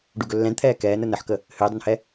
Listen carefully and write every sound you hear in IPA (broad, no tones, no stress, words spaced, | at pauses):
ɖuɡɵlːɛ̃dt̪ʰɛː kɛːnə nəħkə | hʏːdˤʏnhɛ